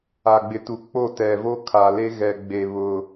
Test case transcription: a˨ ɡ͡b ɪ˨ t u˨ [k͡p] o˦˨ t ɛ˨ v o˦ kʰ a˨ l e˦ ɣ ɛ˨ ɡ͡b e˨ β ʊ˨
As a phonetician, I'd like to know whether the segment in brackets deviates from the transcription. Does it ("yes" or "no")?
no